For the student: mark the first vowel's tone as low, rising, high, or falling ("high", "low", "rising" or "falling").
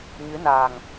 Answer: rising